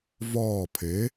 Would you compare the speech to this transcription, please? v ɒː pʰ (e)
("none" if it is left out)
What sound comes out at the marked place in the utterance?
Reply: e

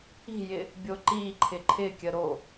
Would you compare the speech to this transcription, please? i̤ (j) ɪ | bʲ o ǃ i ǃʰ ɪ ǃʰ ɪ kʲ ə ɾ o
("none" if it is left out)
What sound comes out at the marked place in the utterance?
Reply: j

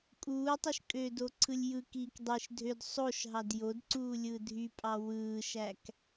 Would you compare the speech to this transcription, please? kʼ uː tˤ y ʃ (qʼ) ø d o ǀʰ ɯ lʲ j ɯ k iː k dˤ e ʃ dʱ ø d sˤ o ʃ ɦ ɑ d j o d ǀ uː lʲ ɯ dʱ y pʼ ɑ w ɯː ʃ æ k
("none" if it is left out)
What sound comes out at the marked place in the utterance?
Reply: kʼ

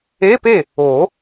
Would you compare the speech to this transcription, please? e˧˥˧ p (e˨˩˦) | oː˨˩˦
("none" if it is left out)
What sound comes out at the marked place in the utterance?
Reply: e˥˩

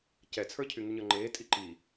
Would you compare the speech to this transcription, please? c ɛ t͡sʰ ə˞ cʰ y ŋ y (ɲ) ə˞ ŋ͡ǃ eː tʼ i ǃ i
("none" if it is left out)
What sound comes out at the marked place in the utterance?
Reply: ɲ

